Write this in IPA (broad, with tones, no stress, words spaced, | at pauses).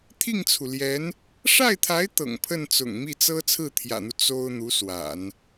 t̪ʰi˥˩ŋt͡sʰu˩ljɛ˧˥n | ʂa˥˩ɪ̯t̪ʰa˧˥ɪ̯ t̪ɤ̰˨˩ŋpʰə˥˩n t͡sʊ̰˨˩ŋmi˥˩t͡sɤ˥ t͡sʰɹ̩˥˩t̪ʰjä̰˨˩n̪u˦ t͡so˥ʊ̯ n̪u˧˥swa̰˨˩˦n